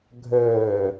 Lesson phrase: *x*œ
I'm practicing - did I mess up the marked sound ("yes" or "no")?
yes